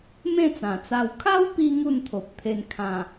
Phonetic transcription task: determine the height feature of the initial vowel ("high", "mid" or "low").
mid